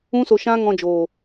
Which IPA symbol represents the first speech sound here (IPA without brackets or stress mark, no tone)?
ũ